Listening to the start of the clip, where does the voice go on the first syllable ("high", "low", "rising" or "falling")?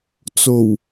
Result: low